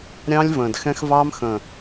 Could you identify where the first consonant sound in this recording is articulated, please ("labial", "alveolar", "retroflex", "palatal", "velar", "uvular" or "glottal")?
alveolar